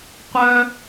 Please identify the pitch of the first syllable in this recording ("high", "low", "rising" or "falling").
high